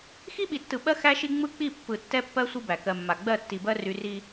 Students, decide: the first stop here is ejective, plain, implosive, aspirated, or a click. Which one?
implosive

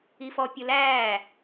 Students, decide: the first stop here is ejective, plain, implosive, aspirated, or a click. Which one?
plain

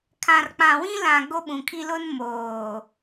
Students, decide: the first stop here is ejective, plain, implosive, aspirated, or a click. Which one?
aspirated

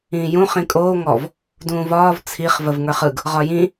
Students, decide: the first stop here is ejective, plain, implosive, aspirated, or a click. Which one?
ejective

